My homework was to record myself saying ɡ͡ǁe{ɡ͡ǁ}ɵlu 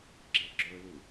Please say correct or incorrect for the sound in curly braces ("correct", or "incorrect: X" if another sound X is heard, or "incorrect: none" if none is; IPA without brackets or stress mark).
correct